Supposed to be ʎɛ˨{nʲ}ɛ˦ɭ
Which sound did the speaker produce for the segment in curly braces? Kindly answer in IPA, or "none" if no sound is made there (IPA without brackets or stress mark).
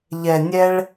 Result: nʲ